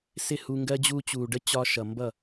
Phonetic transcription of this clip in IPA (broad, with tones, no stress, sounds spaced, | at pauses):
s ɪ˦˨ h u˧ ŋ ɡ ɜ˦ d͡ʑ uː˧ t͡ɕ uː˨ ɖ ə˦ t͡ɕ ɒ˧ ʃ ʌ˨ m b ʌ˦˨